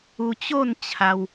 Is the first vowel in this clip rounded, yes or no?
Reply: yes